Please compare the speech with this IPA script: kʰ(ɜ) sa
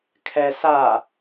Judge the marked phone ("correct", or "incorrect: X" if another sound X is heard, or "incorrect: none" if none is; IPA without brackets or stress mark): incorrect: ɛ